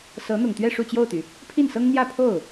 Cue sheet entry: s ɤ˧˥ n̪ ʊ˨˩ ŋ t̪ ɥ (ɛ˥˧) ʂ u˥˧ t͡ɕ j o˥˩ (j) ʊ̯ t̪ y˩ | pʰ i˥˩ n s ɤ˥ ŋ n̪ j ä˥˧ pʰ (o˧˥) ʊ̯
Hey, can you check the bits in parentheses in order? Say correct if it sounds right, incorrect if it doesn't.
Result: correct, incorrect: none, incorrect: o˥˩

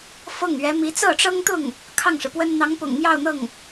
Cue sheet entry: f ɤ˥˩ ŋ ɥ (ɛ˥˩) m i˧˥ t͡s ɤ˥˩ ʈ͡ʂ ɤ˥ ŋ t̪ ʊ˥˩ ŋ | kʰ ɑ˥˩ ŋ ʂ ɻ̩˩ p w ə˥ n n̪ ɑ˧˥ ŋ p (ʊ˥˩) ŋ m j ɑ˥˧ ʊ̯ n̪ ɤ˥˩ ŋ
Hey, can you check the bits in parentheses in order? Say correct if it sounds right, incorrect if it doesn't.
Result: incorrect: ɛ˧˥, incorrect: ʊ̰˨˩

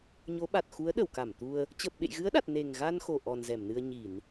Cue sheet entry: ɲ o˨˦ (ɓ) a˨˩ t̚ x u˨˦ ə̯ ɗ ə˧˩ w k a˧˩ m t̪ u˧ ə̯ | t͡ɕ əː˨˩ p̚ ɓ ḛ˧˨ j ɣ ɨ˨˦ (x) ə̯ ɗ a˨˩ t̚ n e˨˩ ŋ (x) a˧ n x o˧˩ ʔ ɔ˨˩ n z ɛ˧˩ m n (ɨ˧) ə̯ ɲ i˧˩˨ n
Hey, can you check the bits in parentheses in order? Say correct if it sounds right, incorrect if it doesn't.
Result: correct, incorrect: none, incorrect: ɣ, correct

